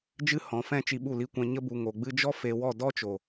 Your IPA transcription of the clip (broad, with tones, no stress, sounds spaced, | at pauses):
d͡ʒ ɨ˦ h ɔ̃˨˦ f ɛ̃˦ t͡ʃ i˧ ɓ u˦˨ l i˧ kʷ ɛ̃˧ ɲ ə˧ b u˨ ŋ o˨ ɡ͡b ɨ˧ d͡ʒ ɔ˦ f e˧ w ɔ˦˨ d ɔ˦ t͡ʃ o˨